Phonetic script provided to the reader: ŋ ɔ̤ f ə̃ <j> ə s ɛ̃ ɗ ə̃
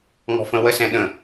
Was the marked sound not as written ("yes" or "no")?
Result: yes